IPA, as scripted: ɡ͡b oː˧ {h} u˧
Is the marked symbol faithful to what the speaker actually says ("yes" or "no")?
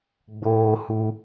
yes